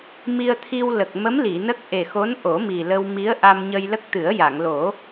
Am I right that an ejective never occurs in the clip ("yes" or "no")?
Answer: yes